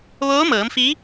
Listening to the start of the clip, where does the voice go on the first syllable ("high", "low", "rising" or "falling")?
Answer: rising